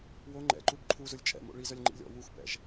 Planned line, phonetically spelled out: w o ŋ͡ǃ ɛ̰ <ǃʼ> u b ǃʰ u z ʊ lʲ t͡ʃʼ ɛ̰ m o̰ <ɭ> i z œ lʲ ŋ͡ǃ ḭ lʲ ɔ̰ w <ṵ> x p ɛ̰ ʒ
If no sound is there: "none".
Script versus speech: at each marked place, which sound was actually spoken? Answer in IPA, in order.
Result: ǃ, ɭ, u

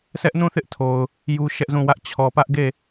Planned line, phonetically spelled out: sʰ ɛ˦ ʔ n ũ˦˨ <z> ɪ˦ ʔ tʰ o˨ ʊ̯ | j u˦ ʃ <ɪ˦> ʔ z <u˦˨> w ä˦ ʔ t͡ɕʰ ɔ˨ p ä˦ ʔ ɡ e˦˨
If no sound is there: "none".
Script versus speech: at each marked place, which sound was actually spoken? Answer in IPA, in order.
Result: θ, ɛ˦, ũ˦˨

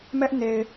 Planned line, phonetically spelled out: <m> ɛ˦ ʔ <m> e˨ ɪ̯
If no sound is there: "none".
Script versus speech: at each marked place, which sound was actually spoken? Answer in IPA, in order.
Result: m, n

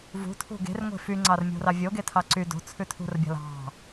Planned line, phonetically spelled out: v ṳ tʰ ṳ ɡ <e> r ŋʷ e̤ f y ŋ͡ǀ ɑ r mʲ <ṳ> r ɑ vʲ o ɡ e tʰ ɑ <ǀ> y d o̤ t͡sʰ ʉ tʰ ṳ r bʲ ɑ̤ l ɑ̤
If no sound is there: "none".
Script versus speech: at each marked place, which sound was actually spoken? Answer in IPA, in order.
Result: e̤, o̤, ǀ

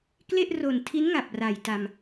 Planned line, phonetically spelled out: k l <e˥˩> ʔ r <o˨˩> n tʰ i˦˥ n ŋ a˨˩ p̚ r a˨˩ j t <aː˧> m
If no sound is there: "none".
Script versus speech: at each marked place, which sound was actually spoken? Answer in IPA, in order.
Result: e˥˩, o˨˩, a˧

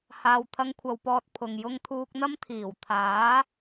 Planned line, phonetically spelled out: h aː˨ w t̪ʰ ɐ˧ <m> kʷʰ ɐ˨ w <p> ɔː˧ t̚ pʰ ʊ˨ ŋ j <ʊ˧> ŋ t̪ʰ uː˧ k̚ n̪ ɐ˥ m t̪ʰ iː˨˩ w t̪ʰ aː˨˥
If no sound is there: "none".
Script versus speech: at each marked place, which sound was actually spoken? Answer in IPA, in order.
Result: ŋ, p, ʊ˧

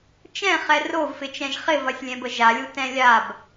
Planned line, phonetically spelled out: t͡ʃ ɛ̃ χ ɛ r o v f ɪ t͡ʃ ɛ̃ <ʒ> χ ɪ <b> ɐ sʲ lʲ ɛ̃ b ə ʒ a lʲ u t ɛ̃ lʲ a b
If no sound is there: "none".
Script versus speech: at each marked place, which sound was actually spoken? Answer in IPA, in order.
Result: ʒ, v

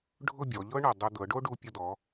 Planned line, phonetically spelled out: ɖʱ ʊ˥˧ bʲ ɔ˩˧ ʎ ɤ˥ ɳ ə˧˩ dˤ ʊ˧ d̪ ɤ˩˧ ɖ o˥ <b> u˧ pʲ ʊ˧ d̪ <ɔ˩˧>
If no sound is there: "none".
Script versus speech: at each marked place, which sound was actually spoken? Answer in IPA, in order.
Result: ɖ, ɔ˩˧

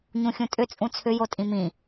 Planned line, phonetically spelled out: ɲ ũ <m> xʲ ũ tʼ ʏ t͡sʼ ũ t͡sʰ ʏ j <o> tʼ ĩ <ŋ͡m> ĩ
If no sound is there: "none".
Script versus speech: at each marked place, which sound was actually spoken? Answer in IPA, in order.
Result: none, o, m

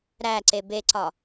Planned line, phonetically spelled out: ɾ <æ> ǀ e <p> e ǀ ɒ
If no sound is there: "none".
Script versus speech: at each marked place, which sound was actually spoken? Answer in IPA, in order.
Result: æ, b

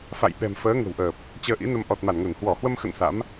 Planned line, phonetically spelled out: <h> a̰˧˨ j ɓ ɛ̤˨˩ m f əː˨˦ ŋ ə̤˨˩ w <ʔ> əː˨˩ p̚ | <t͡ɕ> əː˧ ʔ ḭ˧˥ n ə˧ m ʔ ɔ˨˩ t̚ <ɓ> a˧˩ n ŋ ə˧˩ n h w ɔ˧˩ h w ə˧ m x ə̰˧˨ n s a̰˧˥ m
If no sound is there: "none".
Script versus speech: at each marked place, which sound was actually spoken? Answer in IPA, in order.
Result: f, ʔ, t͡ɕ, m

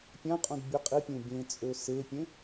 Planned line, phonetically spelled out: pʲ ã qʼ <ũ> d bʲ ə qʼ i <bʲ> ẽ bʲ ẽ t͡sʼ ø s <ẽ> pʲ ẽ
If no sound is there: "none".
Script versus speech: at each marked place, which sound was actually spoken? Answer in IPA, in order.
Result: ũ, pʲ, e

